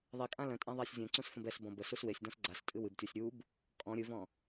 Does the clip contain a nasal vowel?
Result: yes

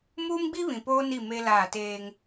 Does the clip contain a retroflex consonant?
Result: no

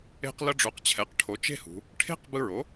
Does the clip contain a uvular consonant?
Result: yes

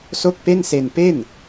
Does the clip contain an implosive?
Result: no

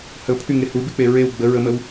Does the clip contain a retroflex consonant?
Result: no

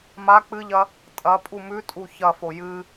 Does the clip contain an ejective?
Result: yes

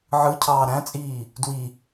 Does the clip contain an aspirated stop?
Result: yes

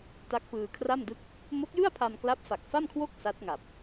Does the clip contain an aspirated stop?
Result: yes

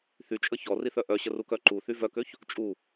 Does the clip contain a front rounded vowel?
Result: yes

